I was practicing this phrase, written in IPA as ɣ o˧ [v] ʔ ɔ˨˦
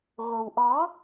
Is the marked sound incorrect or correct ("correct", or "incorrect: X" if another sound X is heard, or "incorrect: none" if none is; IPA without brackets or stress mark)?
incorrect: w